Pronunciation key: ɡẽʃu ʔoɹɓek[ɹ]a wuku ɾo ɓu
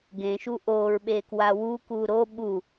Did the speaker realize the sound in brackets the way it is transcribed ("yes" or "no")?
no